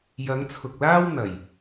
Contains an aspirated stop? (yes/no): yes